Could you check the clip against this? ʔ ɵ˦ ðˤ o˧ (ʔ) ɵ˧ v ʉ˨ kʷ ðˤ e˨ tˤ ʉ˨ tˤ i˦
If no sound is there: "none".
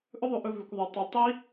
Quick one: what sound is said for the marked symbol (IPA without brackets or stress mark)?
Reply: ʔ